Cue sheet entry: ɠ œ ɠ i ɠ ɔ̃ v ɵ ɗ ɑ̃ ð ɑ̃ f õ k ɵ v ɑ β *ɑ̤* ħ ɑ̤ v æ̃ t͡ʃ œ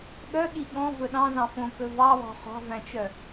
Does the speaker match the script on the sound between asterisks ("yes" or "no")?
yes